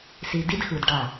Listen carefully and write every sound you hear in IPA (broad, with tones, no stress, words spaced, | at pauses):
si˨di˦dxɯ˨d ɖa˦˨